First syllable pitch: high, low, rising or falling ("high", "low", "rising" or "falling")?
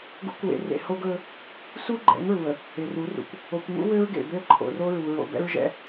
rising